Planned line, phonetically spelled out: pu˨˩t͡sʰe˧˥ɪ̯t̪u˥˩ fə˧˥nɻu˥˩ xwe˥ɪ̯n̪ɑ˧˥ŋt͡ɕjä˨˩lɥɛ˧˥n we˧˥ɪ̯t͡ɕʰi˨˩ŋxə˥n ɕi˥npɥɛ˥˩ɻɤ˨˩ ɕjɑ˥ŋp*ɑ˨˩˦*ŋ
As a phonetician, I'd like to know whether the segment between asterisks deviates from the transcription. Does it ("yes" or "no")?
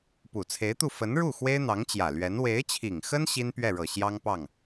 yes